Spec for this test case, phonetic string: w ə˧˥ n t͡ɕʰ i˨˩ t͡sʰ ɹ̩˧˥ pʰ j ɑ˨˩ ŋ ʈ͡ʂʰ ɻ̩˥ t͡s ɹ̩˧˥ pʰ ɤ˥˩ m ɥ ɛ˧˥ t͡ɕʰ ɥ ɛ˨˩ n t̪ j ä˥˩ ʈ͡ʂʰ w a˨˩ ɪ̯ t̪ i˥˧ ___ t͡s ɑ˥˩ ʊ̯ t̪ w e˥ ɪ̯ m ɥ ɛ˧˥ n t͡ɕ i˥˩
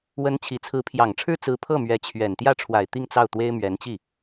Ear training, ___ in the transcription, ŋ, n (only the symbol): ŋ